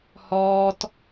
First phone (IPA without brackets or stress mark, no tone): h